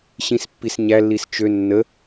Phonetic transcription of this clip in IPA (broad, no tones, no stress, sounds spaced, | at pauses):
ɕ ĩ s pː i s ɲ æ lː i s t͡ʃ ø nː ə